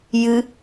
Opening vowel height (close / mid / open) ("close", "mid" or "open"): close